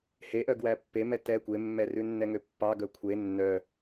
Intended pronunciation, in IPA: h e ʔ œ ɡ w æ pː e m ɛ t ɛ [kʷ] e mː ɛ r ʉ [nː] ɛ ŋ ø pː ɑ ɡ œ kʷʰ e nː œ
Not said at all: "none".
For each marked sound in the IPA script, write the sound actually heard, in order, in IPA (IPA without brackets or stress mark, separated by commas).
kʷ, nː